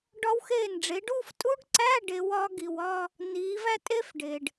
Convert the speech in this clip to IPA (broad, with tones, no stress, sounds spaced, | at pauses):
ɖ ɒ˦˥ w x eː˥˩ n ɖ͡ʐ e˨˦ ɖ uː˥˧ f tʼ u˦˥ ɖ ǀ æ˧˥˧ ɖ e˨˦ w ɒ˨˦ ɡ i˩ w ɒ˥˧ | n iː˨˦ v æ˥˧ tʼ e˦˥ f ɖ e˩ ɖ